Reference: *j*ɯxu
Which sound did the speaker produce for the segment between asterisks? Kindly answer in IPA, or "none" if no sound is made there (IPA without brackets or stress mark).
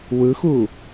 w